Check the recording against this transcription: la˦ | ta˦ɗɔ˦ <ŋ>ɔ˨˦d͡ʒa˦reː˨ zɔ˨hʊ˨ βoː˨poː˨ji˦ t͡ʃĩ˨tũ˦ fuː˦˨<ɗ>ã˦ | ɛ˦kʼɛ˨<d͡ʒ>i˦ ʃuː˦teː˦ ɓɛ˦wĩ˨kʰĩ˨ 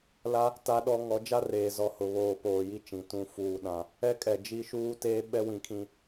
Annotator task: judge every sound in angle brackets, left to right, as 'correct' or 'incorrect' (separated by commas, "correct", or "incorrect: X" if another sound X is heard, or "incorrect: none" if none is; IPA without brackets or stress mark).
correct, correct, correct